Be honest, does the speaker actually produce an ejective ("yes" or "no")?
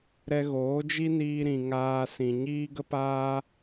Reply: no